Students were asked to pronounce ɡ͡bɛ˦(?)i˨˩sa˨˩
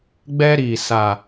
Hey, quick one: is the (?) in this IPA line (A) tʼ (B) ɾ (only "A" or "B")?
B